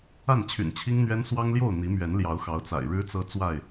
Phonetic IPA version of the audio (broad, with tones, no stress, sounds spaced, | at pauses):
a˥˨ n t͡ɕʰ y̰˨˩ n t͡ɕʰ i˦ ŋ n̪ ɥ ɛ˦ n s w ɑ˦ ŋ l j o˥˨ ʊ̯ n̪ i˨˦ m ɥ ɛ˨˦ n l j ɑ˨˦ ʊ̯ x ɑ˨˦ ʊ̯ t͡s a̰˨˩ ɪ̯ ɻ ɻ̩˦ t͡s ɤ˦ t͡s w a˥˨ ɪ̯